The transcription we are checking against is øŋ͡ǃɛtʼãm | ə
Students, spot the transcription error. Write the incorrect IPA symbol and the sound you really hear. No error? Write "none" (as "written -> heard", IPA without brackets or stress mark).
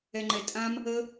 ø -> ɛ